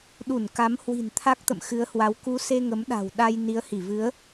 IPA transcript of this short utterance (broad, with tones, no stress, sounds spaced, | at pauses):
ɗ u˧˩ n k a˨˦ m h w i̤˨˩ n t̪ʰ a˦˥ k̚ t̪ ə̰˧˨ m x ɨ˨˦ ə̯ h w a˨˦ w k u˨˦ s e˧ ŋ ə˨˦ m ɗ a̤˨˩ w ɗ a˧ j n i˨˦ ə̯ h i˧˩ v ɨ˨˦ ə̯